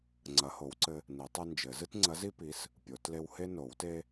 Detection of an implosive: absent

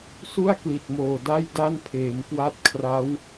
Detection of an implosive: absent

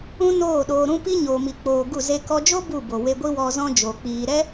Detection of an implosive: present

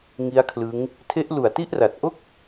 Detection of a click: absent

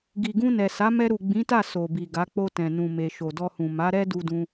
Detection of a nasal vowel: present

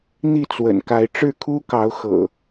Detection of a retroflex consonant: present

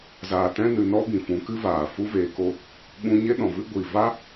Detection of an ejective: absent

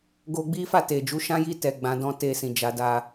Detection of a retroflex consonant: absent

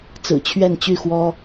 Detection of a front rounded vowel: present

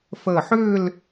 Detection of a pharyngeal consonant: present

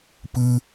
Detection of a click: absent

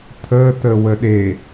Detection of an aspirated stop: present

